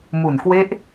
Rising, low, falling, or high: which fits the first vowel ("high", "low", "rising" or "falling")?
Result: low